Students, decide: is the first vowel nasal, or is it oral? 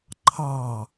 oral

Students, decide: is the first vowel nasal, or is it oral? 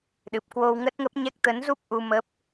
oral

